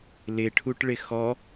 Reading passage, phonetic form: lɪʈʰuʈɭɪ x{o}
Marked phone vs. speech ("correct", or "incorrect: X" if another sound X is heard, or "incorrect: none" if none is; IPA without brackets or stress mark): incorrect: ɔ